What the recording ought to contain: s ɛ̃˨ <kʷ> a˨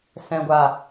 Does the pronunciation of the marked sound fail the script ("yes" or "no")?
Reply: yes